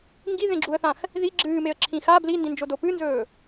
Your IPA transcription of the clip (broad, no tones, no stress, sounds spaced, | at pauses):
ŋ ɡ i ð ẽ ɡ͡ǁ u ə̯ θ ã x | ð i ɡ͡ǁ ɨː m e ə̯ ǁʰ ĩ x a b l i n d ĩ n d͡ʒ o d o p ɨ n z ɵː